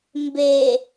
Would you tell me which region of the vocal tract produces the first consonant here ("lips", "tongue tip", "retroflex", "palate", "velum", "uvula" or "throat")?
lips